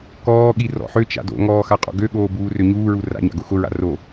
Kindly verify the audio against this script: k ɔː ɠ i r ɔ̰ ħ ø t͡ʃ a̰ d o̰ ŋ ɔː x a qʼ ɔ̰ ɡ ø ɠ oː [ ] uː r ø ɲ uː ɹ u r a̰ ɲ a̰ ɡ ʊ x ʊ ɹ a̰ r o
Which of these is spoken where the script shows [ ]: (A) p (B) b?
B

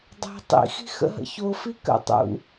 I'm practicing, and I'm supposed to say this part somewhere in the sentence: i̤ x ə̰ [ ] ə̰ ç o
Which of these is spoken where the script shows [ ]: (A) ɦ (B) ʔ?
A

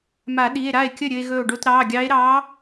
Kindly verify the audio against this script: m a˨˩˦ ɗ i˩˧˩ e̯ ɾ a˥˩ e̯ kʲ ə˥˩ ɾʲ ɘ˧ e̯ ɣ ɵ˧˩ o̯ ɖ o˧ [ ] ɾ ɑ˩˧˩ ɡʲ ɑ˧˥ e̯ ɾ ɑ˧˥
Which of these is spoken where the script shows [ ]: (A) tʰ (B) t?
B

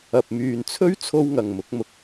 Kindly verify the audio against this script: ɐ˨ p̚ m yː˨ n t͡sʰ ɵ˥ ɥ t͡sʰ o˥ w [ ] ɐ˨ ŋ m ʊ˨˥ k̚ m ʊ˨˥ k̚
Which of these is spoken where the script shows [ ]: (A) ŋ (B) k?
A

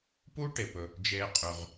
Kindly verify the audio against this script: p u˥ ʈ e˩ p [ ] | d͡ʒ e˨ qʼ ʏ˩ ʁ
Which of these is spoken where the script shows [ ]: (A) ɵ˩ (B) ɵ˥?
A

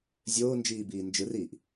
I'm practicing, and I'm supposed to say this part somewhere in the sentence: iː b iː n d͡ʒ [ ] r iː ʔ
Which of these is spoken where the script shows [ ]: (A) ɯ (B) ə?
A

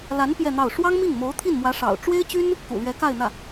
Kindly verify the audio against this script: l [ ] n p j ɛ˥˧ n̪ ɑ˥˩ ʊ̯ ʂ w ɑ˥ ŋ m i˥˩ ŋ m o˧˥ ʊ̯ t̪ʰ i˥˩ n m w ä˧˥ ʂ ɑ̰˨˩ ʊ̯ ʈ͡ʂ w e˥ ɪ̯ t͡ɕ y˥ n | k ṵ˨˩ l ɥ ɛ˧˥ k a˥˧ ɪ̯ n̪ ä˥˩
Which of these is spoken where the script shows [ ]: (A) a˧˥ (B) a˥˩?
A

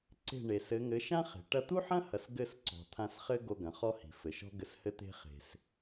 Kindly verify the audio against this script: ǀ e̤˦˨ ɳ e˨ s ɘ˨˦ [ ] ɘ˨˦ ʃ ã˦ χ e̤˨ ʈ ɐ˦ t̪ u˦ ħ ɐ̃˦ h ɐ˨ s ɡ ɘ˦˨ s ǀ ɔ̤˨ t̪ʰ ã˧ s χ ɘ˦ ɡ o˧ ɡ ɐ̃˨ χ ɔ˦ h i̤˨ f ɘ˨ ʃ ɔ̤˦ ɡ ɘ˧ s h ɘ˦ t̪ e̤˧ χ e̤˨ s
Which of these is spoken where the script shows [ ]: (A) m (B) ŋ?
B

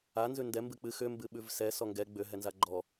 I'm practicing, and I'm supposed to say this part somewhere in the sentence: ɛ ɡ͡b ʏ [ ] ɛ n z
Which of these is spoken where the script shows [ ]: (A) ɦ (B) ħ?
A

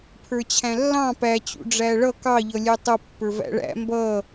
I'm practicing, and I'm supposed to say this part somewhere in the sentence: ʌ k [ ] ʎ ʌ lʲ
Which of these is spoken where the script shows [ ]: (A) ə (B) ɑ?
B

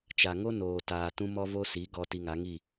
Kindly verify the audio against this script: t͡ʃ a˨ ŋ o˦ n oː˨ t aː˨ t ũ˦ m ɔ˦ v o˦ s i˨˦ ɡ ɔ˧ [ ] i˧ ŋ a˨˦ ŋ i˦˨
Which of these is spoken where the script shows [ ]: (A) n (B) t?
B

